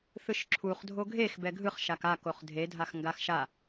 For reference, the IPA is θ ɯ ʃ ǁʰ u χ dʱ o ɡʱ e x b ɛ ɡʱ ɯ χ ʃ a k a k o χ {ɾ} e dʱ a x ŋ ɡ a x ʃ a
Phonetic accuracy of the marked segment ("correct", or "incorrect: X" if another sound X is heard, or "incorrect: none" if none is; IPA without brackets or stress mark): incorrect: dʱ